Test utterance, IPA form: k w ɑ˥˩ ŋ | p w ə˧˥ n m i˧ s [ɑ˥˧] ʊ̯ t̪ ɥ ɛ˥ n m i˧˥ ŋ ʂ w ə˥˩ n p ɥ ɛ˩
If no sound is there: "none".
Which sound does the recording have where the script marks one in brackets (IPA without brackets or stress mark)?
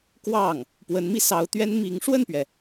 ɑ˧˥